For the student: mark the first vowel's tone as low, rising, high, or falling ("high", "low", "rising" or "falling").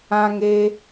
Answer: high